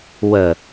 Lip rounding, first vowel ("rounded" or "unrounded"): unrounded